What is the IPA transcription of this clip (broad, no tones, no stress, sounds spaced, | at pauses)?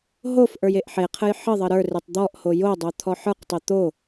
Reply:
ɦ o f ʔ ə˞ j e ʔ ħ e qʰ ə j ħ ə ðˤ ə ɾ ə˞ r e tˤ d̪ ɔ ʔ h o j o dˤ o t̪ʰ ɔ ħ ə˞ q tˤ e t̪ o